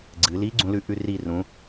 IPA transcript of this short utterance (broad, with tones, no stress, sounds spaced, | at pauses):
ɡ͡ǀ ɨ˩˧ l i˨˥ ɡ͡ǀ ũ˩˧ l ʉ˩˧ ʔ ʉ˧ r i˧˩ r ũ˩˧